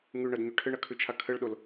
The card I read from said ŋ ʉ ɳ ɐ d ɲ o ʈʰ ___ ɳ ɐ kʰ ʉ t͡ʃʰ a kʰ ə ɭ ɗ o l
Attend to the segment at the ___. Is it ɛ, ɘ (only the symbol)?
ɘ